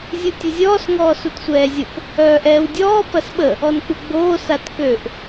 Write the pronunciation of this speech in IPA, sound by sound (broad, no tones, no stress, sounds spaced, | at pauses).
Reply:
zʲ u tʲ ʊ zʲ ɔː s ŋ ɔː s u t sʷ ɛː zʲ ʊ p | œː ʔ ɛː w dʲ ɔː p ɐ s ɓ ə | ɔ n k͡p u ɡ͡b oː s a t k ø ʔ